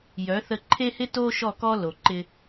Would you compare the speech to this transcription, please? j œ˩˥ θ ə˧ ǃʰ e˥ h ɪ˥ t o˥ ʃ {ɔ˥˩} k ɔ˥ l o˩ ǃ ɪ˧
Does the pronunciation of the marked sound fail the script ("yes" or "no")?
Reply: no